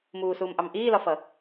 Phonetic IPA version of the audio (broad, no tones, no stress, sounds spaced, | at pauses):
m uː s uː m ʔ ɑ m ʔ iː l ɒ f ʌ